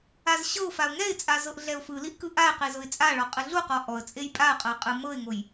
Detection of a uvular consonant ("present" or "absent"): present